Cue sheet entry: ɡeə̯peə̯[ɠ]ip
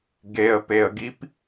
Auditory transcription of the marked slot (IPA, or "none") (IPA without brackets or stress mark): ɡ